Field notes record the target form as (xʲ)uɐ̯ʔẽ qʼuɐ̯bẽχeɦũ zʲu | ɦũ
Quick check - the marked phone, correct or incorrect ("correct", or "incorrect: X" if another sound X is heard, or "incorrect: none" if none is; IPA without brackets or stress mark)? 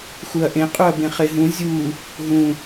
incorrect: x